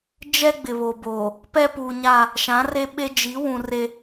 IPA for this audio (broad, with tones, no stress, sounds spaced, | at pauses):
d͡ʒ ɛ˦ ɡ͡b ɪ˨ β o˨ b oː˨ | p ɛ˦ p uː˨ ɲ a˦˨ | ʃ ã˨˦ r e˦ ɓ e˦ d͡ʒ i˨˦ w ũ˨ r e˦